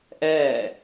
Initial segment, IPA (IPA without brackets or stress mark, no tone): ʔ